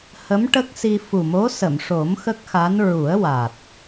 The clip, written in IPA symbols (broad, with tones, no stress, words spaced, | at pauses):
hə˧˥mʈə˦˥k̚si˧ fu˨˩mo˧˥sə˨˩˨mʂo˨˩˦m xə˦˥k̚xa˧˥n ɹu˨˩˦ə̯ wa˨˩t̚